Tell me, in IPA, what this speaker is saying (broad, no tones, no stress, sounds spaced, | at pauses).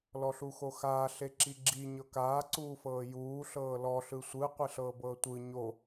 l ɔ ɬ u x o x aː ɬ e ǁ i ɡ͡ǁ i ɲ ɤ k aː ǀ uː f ɤː j uː ɬ ɤː l ɔ ɬ ɯ sʷ ɯ qʷ e ɬ ɤː b ɤː tʷ ɯ ɲ o